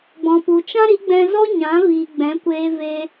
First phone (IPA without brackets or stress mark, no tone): ɡ͡b